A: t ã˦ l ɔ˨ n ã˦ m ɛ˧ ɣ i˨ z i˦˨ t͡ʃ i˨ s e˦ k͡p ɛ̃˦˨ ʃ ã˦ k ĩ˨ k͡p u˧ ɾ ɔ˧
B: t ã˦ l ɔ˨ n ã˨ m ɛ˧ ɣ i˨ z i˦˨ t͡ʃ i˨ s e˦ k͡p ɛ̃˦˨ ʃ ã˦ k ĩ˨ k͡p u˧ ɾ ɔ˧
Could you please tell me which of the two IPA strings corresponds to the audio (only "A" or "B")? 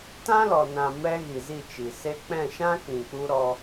B